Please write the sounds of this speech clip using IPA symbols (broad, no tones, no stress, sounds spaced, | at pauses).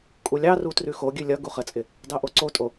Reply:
kʼ u lʲ ɑ r u t r ʉ x o ɡʲ ʉ lʲ ʌ ɡ u χ ə t͡sʼ ɪ | d ɑ ʔ o ǀ o tʼ o